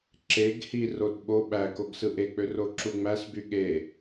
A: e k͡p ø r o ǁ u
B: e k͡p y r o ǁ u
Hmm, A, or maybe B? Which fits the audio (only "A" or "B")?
A